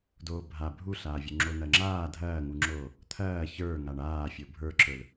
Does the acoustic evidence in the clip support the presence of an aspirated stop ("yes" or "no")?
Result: yes